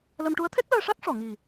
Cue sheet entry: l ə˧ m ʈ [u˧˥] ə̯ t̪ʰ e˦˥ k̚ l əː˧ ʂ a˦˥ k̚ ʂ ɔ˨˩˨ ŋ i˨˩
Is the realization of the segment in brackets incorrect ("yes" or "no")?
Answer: no